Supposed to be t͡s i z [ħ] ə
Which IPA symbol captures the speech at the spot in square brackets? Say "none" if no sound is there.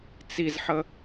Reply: ħ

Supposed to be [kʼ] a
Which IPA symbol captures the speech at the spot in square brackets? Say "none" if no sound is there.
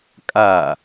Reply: kʼ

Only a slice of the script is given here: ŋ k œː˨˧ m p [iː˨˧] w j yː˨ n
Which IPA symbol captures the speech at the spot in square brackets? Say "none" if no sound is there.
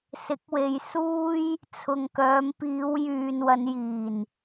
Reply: iː˨˧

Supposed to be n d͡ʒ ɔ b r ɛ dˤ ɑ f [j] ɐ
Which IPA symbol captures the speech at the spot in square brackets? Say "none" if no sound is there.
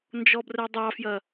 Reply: j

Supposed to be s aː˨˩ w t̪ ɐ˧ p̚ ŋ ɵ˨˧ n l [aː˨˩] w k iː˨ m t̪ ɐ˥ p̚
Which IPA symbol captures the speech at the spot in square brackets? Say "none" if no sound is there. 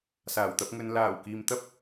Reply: aː˨˩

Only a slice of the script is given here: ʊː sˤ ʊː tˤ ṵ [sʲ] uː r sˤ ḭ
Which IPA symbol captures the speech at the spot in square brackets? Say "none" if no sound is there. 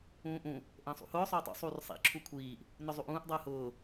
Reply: sˤ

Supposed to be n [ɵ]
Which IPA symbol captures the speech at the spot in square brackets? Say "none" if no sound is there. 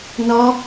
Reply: ɔ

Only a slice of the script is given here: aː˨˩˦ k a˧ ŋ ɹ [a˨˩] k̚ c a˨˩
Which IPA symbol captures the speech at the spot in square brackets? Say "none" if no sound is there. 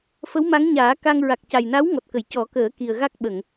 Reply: a˨˩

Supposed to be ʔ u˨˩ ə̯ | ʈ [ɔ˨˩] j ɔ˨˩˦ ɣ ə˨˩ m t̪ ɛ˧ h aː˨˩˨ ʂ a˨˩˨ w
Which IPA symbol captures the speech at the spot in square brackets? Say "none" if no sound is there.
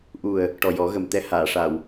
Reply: ɔ˨˩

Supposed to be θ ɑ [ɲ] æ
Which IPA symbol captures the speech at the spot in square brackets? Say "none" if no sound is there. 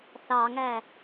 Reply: ŋ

